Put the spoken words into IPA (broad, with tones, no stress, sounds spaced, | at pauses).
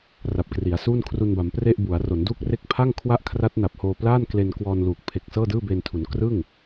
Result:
r a˨˩ p̚ k r i˩˦ a̯ s uː˥˩ n kʰ r u˧ n b a˩˦ m p r e˥˩ ʔ b u˩˦ a̯ r o˩˦ n d uː˥˩ k̚ r e˥˩ k̚ pʰ a˥˩ ŋ kʰ w a˥˩ ʔ kʰ r a˦˥ t̚ n a˨˩ p̚ h oː˧ p l aː˥˩ n k l e˧ n k w ɔː˧ n l uː˨˩ k̚ pʰ e˨˩ k̚ s ɤː˥˩ d ɯː˥˩ b e˧ n tʰ u˩˦ n k r ɯ˥˩ ŋ